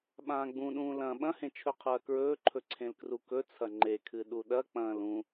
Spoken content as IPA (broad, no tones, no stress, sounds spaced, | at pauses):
ɓ ãː ɡ͡b ũ ɗ ũː l ɐ̃ ɓ ɐ̃ h ẽ t͡ʃʰ ɵ qʰ ɐː k ɹ ɵː ǃʰ ɵ ǀʰ ẽ l k r u k ɵ t͡sʰ ɐ ŋ͡ǃ e kʰ ɨ ɗ u ɗ ɐ k͡p ɐ̃ː l ũ